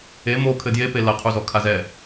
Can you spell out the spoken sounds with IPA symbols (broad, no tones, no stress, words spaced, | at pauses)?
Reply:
e mo kʰɘdjepe lɐqʰuzɔ kʰazɛ